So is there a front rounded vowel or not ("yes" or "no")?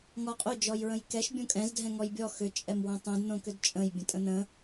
yes